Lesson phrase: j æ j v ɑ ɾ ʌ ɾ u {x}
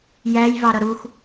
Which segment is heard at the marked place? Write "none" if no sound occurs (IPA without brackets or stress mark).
x